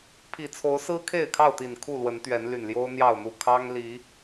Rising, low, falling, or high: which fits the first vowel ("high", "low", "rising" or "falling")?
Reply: low